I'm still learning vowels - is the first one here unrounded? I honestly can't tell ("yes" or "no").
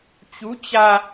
no